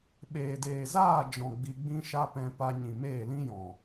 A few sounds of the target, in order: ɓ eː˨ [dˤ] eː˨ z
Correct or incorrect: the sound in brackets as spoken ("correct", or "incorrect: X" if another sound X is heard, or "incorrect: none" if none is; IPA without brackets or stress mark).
incorrect: d